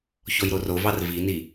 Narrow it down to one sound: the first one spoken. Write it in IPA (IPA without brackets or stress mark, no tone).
ç